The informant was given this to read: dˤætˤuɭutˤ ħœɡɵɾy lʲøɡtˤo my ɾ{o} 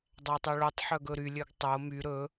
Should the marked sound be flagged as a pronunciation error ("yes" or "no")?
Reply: yes